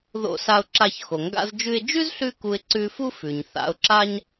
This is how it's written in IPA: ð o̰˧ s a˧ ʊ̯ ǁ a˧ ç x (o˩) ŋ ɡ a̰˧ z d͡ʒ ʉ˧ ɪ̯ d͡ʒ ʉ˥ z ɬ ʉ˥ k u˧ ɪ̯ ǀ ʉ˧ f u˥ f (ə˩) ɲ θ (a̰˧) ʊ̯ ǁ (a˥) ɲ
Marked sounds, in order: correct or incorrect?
correct, incorrect, correct, correct

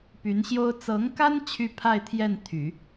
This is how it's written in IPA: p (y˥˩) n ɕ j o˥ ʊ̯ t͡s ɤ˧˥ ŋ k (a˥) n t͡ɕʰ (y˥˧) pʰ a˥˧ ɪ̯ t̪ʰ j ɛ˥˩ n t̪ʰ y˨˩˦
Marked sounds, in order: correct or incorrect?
incorrect, correct, correct

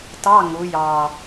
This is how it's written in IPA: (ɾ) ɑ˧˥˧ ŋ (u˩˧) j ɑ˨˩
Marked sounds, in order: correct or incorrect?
incorrect, correct

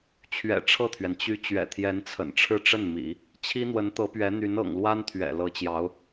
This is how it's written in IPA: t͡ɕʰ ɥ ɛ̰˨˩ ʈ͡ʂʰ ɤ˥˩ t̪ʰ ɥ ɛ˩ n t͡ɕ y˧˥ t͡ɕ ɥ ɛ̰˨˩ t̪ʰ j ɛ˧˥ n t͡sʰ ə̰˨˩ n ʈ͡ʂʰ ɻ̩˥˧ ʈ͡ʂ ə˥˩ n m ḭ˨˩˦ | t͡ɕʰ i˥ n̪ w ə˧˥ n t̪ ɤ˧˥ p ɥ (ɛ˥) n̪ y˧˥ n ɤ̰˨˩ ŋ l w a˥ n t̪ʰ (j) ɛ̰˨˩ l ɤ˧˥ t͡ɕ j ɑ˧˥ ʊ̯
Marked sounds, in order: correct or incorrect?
incorrect, incorrect

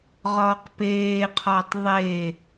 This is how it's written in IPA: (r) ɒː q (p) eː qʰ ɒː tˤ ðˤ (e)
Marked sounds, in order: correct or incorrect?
incorrect, correct, correct

